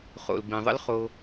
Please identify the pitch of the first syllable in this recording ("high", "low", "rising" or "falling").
low